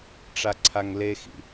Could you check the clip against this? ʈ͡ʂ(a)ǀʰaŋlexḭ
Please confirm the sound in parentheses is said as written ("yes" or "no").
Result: yes